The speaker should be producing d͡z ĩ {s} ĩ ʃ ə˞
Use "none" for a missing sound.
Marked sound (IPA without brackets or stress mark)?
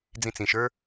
t͡s